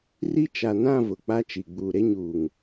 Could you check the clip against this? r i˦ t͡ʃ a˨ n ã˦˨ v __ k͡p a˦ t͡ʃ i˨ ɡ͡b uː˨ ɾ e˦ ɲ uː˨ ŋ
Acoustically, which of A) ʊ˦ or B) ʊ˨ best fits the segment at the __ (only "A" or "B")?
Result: B